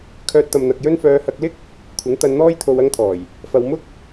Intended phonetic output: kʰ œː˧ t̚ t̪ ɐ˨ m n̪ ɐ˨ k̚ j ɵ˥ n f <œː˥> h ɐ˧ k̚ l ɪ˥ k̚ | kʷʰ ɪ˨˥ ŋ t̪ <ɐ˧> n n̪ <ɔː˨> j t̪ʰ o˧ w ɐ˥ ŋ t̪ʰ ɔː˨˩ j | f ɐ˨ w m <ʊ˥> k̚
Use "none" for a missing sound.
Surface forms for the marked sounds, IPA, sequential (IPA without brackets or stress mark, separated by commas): œː˧, ɐ˧, ɔː˥, ʊ˥